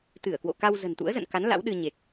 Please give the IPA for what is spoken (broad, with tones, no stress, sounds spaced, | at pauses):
t̪ ɨ˧˩ ə̯ k w o̰˧˨ k a˧ w z ə̤˨˩ n t̪ ṵ˧˥ ə̯ z ə̰˧˨ n k a˨˦ n l a̰˧˥ w ɗ ɨ˧ ɲ e˨˩ k̚